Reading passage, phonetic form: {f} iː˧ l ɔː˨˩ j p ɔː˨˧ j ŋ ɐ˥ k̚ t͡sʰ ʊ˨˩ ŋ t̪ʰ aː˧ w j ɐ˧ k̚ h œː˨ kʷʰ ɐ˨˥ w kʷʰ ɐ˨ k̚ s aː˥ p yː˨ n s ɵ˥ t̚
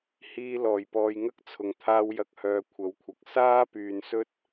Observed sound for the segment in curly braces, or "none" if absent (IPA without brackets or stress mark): h